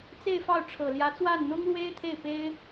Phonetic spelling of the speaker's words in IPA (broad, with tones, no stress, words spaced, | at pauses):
t͡se˥˧ɪ̯fɑ˥˩ʊ̯ ʈ͡ʂʰɤ˨˩ljä˧˥t͡swa˥˩n n̪ʊ˥ŋlwe˥ɪ̯t̪ʰe˥˩ɪ̯pe˥ɪ̯